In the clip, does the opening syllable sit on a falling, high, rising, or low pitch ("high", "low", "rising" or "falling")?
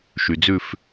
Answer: low